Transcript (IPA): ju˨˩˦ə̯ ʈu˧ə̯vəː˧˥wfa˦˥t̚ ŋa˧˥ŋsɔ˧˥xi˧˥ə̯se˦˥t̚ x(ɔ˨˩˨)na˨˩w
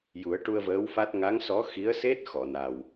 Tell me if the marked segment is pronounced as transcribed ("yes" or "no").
yes